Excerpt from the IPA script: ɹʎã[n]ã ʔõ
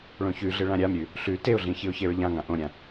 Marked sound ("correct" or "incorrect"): incorrect